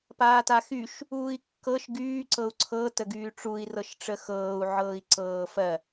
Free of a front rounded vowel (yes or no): no